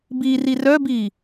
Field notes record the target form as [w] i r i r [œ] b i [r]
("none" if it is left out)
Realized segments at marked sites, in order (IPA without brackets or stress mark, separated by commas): b, œ, none